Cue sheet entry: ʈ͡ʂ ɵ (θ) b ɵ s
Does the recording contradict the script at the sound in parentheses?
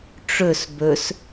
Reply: yes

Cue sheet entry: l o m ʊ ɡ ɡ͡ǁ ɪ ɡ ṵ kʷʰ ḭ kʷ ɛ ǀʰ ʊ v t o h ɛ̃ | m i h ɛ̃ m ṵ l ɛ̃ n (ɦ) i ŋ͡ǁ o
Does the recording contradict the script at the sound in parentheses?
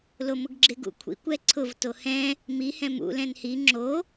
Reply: yes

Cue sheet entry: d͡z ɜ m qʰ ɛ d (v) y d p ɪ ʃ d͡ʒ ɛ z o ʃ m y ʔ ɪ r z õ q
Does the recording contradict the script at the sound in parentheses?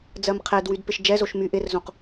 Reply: yes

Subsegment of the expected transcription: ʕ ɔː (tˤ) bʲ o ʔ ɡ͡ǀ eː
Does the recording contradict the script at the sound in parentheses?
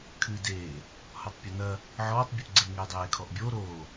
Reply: no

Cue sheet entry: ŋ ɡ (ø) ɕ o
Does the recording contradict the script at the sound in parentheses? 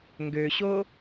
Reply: no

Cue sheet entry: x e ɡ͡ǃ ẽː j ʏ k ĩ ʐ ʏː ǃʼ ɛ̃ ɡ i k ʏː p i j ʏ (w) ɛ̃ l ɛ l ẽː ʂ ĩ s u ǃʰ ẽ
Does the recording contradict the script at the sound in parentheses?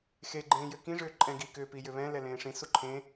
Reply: yes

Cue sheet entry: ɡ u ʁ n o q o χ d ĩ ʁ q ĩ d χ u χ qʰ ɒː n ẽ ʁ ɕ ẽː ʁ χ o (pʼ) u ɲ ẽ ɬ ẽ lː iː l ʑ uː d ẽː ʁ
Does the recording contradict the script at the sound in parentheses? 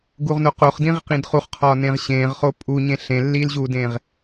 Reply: no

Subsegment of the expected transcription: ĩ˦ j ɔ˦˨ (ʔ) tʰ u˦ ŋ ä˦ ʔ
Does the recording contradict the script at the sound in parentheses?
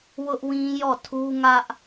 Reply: yes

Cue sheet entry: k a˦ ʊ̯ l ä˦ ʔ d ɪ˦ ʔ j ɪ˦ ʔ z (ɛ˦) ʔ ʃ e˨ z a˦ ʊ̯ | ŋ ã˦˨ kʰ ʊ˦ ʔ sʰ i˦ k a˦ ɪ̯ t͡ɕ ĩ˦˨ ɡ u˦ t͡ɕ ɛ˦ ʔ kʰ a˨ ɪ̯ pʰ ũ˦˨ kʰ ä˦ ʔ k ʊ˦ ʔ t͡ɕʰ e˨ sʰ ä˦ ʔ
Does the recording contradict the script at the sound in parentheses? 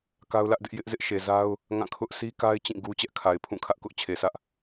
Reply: yes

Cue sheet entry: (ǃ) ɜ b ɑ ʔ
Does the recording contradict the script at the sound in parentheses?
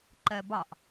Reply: no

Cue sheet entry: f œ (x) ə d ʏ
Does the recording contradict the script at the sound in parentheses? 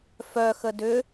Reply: no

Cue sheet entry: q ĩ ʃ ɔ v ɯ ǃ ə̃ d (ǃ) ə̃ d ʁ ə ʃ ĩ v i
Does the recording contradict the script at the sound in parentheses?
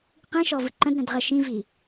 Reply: yes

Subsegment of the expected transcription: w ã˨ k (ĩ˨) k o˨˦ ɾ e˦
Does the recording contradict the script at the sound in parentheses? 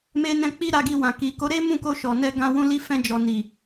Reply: yes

